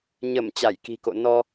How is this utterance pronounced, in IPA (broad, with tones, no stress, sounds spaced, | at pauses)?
ɲ ə˧˩ m t͡ɕ a˧˩ j k i̤˨˩ k o̰˧˨ n ɔ˧